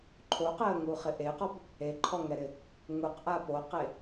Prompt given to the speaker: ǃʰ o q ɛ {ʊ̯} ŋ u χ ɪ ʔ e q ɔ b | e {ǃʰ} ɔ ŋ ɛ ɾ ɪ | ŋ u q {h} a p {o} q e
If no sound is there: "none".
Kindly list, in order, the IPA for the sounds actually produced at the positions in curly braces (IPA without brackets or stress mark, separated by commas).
ə̯, ǃʰ, ʔ, o